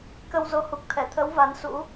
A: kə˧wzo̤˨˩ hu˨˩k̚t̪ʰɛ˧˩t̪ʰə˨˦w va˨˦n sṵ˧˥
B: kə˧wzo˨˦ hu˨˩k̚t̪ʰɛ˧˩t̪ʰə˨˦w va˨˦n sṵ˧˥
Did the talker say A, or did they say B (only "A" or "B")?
B